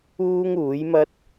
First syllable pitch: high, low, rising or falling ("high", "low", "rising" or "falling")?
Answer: high